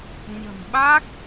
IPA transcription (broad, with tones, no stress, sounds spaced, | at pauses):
ɲ ə̤˨˩ m ɓ a˦˥ k̚